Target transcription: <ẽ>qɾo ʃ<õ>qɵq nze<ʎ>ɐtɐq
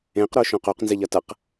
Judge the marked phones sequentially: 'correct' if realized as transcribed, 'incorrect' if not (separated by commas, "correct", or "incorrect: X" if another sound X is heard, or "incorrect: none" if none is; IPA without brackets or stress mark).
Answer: correct, correct, correct